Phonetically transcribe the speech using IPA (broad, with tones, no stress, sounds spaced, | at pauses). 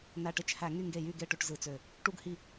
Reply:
n æ˧˩ ʈ e˥˩ t͡ʃ h æ˧˩˧ ŋ y˥˩ ŋ ɡ e˥˩ j y˥˩ ɡ e˥˩ ʈ ø˥˩ ʈ z ɯ˧˩˧ t͡s ø˧˩ | ʈ u˥˧ ɡ h i˥˩